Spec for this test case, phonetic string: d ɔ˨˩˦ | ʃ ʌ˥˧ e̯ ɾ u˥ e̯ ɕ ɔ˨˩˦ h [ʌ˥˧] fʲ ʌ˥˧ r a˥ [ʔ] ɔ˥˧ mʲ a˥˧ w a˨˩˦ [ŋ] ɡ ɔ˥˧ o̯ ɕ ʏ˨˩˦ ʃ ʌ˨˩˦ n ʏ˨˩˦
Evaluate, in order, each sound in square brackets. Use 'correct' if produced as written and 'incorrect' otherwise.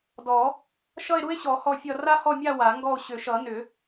incorrect: ɔ˥˧, incorrect: h, correct

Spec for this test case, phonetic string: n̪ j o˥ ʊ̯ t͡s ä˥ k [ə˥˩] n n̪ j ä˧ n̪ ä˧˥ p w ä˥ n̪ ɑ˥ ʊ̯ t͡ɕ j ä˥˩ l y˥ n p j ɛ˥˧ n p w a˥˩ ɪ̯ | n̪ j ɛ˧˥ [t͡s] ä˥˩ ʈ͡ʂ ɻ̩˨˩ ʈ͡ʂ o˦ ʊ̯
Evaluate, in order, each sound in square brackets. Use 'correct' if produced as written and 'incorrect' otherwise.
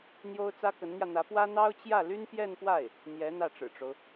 incorrect: ə˧˥, incorrect: n̪

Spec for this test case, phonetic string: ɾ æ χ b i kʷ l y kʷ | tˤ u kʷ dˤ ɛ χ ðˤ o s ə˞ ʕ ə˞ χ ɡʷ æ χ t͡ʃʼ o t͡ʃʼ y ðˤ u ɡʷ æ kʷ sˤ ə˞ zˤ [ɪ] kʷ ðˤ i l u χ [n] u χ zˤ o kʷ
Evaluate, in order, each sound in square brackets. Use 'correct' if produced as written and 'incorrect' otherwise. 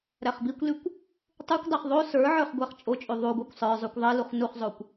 incorrect: y, correct

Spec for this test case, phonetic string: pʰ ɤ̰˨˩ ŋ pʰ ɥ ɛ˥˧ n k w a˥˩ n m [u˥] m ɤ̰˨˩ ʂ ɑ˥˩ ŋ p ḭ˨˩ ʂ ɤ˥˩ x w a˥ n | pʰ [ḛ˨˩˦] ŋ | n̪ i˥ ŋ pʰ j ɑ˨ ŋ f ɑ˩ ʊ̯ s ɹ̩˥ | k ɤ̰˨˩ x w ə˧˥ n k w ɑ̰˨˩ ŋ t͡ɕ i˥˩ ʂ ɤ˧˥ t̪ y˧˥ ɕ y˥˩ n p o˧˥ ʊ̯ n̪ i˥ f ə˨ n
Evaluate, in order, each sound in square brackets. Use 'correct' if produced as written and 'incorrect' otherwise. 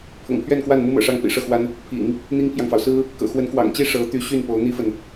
correct, incorrect: ḭ˨˩˦

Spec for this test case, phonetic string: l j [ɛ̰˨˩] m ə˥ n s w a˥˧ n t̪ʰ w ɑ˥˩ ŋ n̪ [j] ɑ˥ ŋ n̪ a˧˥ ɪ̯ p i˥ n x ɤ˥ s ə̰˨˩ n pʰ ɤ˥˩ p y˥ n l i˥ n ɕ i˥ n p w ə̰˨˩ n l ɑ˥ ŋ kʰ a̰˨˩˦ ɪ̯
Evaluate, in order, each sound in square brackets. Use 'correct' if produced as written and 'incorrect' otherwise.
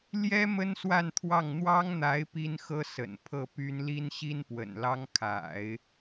incorrect: ɛ˥, incorrect: w

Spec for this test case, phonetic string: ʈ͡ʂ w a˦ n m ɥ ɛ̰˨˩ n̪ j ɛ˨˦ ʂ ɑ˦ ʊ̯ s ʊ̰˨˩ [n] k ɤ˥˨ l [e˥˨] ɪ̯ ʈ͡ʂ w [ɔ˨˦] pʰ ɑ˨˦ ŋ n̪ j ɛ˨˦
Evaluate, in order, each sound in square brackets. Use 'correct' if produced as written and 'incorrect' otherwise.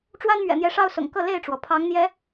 incorrect: ŋ, correct, incorrect: ɔ˩

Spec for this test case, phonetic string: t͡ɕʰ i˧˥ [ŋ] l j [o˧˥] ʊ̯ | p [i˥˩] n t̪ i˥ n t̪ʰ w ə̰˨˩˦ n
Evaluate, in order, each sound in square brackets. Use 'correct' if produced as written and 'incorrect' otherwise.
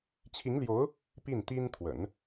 correct, correct, correct

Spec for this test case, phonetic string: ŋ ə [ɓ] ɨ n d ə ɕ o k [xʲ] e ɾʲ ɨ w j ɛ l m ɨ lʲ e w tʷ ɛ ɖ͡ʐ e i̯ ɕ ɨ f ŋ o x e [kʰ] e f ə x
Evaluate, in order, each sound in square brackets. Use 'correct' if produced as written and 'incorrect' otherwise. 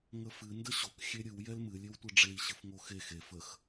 incorrect: f, correct, incorrect: x

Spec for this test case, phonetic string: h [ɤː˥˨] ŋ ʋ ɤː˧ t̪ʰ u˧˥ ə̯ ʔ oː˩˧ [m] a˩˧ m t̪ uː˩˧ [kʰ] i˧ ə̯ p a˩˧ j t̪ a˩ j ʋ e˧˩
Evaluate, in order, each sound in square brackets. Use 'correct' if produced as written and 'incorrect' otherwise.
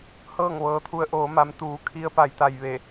correct, correct, correct

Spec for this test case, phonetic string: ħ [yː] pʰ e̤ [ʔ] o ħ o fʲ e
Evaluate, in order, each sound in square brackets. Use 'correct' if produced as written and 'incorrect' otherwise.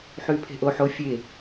correct, correct

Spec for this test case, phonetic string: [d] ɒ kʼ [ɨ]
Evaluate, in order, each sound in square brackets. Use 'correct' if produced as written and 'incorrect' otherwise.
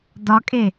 correct, incorrect: e

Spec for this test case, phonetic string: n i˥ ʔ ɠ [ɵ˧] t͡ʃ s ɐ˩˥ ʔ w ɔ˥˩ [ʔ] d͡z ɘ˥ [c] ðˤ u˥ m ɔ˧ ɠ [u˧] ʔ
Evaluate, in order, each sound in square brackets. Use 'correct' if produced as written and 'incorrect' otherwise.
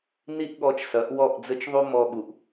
incorrect: ɔ˧, correct, incorrect: t͡ʃ, incorrect: u˩

